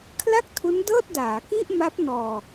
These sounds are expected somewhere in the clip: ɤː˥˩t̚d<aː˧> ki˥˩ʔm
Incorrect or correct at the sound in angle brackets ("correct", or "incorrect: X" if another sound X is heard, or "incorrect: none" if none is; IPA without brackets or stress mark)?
incorrect: aː˩˦